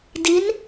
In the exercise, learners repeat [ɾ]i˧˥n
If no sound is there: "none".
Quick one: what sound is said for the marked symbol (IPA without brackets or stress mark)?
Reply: d